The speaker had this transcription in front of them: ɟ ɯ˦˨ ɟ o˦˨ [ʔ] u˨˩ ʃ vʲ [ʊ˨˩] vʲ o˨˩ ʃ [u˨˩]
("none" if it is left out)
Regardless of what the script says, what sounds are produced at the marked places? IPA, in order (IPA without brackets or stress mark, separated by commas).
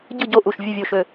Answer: ʔ, ɯ˨˩, ø˨˩